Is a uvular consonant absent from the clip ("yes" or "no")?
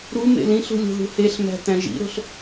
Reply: yes